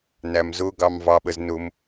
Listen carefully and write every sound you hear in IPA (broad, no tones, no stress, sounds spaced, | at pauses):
n æ m z ʊ ɡ ɑ m v ɑ ɓ ə z n ʊ m